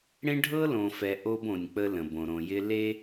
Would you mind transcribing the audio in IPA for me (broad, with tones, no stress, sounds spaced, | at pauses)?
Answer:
ɽ ẽ˦ ɖʱ ɤ˦ l õ˨ f ɛ˨ ʔ o˦ b õ˨ nʲ k͡p ə˦ l ə̃˨ b õ˨ ɾ õ˨ j ɪ˦ l e˦